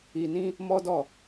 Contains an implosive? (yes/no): no